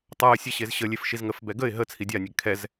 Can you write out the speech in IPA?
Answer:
tˤ a ə̯ sʲ ɛ ɕ e z ɕ ə lʲ e f ʃ i z ŋ ə f b ɛ ɡ ə ɪ̯ ɦ ə t͡sʰ i dʲ a nʲ ɛ ɡ kʰ ɛ z

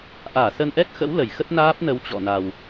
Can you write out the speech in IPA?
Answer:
ʔ aː˧˩ s ə˧ n ʔ ɛ˦˥ k̚ x ə̰˧˥ w l ə˧˩ j x ə˦˥ t̚ n aː˦˥ p̚ n ə˨˦ w t͡ɕ ɔ̰˧˨ n a˨˩ w

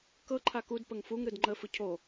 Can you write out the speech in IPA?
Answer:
k ɤ ǃʰ a k u d p ə ŋ f u ŋ ɾ ɯ d ŋ͡ǃ ə f ɯ cʰ o

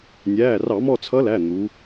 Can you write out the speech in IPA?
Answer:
nʲ æː˩˧˩ r ɑ˧˩˧ m ɔ˦˨ t͡sʰ ʌ˧˥ l æ˩˧˩ n̪ u˩˧

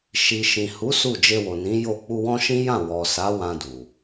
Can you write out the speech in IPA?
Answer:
ʃ i˨ ʃ ĩ˨ h u˨˦ s u˦˨ d͡ʒ e˧ w o˨ n ĩ˨˦ j o˦˨ k͡p u˧ w ɔ̃˦ ʃ ĩ˦ j ã˦˨ w ɔ˨ s a˨˦ w ã˧ d u˨

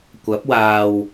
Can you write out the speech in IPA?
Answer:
kʷ ɐ˨˥ p̚ w aː˨ w

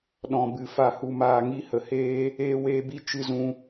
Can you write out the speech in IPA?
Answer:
ɗ ɔ̃˨ b ɨ˨ f a˨ h u˨ m aː˨ ŋ i˧ h ə˨ h eː˦ | eː˧ w eː˧ b i˧ t͡ʃ ɨ˧ z ũ˧

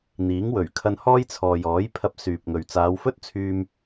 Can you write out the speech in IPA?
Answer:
n̪ iː˨˥ ŋ w ɵ˨˩ ɥ kʰ ɐ˧ n h ɔː˥ j t͡sʰ ɔː˨ j ɔː˨˥ j pʰ ɐ˧ p̚ s yː˨ p̚ ŋ ɵ˨ ɥ t͡s aː˨˧ w f ɵ˥ t̚ t͡sʰ yː˧ m

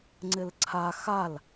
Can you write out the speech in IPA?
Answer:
ŋ͡ǀ ɪ l ǀʰ a x a l

